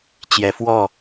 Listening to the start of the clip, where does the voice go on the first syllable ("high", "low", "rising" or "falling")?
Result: rising